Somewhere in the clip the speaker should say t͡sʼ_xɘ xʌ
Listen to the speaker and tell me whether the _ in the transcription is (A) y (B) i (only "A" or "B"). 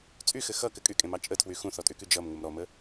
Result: A